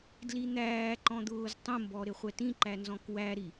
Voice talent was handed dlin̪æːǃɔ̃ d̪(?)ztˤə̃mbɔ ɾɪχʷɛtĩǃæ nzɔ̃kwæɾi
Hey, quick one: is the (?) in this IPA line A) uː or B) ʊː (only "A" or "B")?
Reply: B